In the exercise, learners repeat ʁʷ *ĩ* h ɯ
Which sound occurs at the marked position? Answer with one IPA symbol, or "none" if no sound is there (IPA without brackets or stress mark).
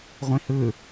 ĩ